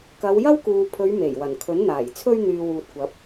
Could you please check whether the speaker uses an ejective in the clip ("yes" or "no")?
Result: no